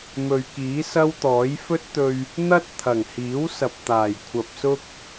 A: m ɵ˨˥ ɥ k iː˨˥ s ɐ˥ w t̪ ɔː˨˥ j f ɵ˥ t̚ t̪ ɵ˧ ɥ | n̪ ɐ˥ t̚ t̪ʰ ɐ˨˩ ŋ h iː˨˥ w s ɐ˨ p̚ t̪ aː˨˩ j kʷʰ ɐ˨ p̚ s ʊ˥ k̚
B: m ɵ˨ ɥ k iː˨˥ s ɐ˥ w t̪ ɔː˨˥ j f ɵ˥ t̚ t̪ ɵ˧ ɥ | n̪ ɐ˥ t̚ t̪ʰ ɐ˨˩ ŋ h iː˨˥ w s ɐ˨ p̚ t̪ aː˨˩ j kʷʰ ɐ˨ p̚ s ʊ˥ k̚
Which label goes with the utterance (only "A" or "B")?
B